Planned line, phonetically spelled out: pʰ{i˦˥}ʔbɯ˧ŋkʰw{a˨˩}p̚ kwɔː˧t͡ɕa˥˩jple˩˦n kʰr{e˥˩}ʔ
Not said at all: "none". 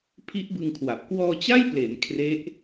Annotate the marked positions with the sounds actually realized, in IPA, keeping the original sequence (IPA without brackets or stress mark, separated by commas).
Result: i˦˥, a˨˩, e˦˥